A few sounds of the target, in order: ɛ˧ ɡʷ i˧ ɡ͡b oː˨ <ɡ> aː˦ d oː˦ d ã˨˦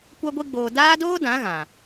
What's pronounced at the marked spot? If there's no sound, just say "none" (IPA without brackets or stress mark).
d